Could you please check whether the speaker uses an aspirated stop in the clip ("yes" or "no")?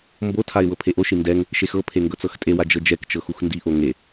yes